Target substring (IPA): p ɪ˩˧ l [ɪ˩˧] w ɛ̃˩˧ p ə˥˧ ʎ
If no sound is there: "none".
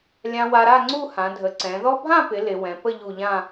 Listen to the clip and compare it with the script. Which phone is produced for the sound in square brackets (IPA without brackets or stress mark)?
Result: ɪ˩˧